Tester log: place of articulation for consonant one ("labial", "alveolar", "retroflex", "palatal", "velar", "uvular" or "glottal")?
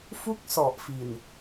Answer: labial